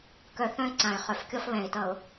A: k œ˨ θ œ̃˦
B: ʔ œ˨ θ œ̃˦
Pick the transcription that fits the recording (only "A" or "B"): A